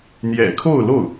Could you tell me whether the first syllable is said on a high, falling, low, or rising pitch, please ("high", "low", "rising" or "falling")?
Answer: low